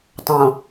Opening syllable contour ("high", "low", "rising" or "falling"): low